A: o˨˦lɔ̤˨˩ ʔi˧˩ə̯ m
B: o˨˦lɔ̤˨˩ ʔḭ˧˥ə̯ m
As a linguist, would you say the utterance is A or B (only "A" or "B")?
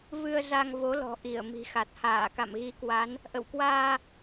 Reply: A